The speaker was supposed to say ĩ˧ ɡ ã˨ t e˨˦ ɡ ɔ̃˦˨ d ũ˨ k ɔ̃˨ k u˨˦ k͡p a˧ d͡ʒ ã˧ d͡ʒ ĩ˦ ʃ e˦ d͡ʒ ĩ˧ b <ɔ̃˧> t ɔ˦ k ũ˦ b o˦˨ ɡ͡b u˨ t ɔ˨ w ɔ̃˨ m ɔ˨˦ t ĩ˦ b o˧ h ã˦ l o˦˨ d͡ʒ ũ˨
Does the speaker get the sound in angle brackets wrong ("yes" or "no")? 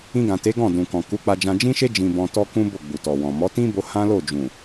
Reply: no